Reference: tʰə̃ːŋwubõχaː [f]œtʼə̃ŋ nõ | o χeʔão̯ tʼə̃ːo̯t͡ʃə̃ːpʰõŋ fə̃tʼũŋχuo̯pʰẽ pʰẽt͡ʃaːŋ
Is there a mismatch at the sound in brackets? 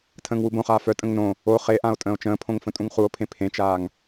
no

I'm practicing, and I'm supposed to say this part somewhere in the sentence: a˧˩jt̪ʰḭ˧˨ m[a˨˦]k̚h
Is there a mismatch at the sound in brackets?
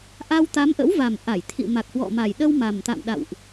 yes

